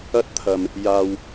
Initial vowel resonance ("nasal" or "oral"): oral